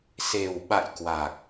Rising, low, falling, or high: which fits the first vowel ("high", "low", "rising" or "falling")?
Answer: low